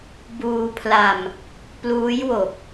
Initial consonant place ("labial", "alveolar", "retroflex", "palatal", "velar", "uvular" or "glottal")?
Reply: labial